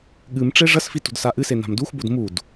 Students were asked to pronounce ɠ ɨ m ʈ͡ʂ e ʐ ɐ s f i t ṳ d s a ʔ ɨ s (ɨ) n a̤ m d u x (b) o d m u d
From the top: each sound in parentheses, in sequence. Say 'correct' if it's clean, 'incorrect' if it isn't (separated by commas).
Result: incorrect, correct